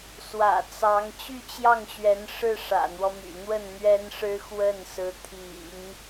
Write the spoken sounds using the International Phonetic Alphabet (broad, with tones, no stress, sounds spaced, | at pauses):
s w ä̰˨˩ t͡s ɑ˧˥ ŋ t͡ɕ y˥˧ t͡ɕ j ɑ˥˩ ŋ ɕ ɥ ɛ˧˥ n ʂ ɻ̩˥˩ ʂ ä̰˨˩ n̪ w ɔ˦ m y̰˨˩ n̪ w ə˥˩ n n̪ ɥ ɛ˥ n ʂ ɻ̩˥ x w ə˥˩ n s ɹ̩˧˥ t̪ʰ ḭ˨˩˦ ŋ